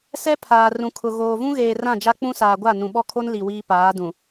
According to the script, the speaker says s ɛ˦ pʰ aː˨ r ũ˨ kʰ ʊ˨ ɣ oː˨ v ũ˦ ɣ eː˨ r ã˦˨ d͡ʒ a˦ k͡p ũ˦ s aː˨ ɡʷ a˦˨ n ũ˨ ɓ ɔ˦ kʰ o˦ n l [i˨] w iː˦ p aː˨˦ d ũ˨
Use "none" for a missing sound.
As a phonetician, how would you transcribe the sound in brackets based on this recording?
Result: i˨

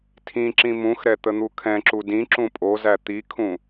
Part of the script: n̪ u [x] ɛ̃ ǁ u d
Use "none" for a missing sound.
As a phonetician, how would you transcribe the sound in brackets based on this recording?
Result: kʰ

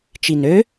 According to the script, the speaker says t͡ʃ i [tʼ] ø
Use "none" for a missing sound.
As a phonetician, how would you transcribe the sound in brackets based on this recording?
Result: n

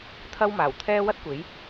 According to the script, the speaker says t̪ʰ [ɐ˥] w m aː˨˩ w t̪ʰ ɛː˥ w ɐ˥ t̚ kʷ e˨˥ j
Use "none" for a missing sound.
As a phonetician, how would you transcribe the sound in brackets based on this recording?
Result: ɐ˥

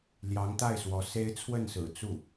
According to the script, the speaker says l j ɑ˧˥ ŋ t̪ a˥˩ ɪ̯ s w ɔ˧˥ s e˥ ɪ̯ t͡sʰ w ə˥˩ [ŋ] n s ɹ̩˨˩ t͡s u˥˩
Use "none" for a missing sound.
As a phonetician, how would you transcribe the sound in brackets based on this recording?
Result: none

